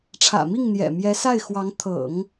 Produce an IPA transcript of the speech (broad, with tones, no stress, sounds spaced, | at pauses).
ʈ͡ʂʰ ä̰˨˩ m i˥˩ ŋ n̪ j ɛ̰˨˩ m j ɛ˧˥ s a˥˩ ɪ̯ x w ɑ˧˥ ŋ t̪ʰ ɤ̰˨˩˦ ŋ